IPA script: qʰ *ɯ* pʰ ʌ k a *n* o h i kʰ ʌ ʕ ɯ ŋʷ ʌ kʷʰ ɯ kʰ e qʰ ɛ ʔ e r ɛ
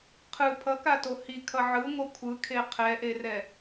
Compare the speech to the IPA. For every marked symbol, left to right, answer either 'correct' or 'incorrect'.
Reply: correct, incorrect: t

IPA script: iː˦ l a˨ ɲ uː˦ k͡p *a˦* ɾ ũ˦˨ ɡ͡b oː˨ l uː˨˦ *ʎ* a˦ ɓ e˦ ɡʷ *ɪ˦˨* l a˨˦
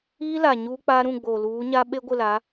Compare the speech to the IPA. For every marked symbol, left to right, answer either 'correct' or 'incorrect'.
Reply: correct, incorrect: ɲ, correct

